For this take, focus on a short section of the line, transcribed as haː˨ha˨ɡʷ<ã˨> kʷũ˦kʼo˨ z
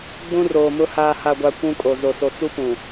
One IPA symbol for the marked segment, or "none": a˨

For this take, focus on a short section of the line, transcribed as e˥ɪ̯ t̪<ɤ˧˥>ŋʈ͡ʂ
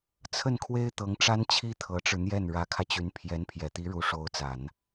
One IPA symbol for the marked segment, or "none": ɤ˧˥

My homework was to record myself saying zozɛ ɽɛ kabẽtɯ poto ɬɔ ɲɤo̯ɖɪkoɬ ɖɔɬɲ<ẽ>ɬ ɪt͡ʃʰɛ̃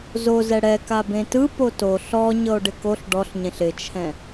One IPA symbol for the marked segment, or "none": ẽ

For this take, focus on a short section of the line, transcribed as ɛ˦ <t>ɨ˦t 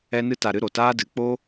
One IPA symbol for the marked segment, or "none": n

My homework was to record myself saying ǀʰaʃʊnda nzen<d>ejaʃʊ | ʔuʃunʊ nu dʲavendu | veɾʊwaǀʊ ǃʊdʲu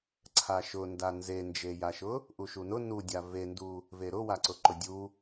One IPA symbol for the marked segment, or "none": d͡ʒ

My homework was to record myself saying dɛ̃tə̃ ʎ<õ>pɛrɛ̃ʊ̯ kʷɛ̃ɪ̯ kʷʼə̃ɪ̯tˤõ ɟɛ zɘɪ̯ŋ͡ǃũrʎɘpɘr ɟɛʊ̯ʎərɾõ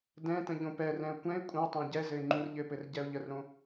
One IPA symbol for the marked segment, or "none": õ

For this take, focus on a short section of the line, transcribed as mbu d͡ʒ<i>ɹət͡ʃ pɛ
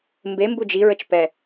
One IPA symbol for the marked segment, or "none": i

